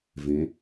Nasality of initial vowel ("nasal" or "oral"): nasal